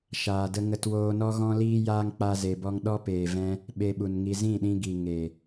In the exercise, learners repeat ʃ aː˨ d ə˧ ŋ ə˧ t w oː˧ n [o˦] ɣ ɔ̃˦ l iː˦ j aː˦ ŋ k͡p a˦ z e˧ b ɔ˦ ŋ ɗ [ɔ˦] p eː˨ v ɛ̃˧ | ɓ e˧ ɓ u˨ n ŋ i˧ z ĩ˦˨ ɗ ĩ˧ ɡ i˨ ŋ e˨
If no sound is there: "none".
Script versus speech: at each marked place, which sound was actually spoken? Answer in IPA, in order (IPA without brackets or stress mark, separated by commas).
ɔ˦, ɔ˦